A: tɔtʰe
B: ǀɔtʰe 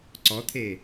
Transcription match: B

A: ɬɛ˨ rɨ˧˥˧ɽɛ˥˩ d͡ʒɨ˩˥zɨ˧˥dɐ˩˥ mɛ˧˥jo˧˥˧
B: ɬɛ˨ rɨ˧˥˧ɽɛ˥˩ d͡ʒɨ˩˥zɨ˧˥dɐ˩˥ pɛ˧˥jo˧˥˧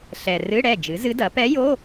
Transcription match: B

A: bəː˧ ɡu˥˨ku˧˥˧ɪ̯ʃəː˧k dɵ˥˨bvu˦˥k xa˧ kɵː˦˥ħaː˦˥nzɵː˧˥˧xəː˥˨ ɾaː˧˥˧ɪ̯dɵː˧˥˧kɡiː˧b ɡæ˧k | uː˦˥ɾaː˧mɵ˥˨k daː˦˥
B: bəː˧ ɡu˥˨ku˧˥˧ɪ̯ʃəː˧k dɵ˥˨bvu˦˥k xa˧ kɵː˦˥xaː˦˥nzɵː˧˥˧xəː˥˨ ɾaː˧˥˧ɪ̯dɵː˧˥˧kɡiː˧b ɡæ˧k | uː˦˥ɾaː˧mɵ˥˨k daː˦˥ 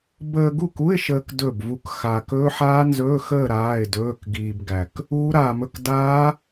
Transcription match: A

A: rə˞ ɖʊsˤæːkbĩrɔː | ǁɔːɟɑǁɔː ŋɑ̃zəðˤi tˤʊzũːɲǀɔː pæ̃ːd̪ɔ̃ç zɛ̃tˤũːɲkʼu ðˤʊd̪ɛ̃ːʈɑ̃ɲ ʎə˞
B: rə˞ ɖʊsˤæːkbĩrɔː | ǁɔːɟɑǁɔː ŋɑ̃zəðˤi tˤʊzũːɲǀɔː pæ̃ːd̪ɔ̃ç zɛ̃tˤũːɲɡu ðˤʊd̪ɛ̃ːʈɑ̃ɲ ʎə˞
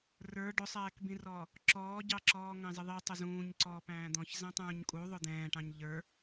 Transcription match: A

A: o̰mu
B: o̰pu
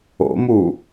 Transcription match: A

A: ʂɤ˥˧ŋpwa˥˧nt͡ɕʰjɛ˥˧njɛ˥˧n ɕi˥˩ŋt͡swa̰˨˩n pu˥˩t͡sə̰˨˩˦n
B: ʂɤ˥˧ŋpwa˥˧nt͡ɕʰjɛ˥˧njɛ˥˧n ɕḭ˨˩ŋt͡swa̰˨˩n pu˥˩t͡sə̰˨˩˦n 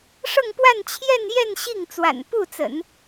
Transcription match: A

